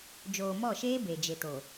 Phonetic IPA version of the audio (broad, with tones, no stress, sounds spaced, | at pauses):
d͡ʒ oː˨ m ɔ˦˨ ʃ eː˦ b e˨ d͡ʒ e˨ t o˨